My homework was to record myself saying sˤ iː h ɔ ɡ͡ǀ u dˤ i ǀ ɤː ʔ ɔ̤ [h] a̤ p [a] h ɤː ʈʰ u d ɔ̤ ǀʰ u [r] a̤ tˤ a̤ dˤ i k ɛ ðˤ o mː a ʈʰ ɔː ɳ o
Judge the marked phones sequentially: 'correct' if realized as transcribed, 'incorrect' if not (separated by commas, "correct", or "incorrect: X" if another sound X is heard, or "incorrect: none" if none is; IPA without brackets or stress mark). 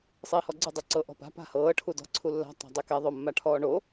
incorrect: p, incorrect: a̤, incorrect: lː